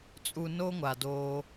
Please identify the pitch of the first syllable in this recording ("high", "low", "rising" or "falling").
low